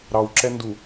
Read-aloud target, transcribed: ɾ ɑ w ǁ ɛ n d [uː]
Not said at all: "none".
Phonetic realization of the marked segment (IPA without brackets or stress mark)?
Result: u